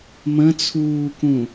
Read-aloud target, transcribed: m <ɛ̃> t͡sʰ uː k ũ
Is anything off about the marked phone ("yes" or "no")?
yes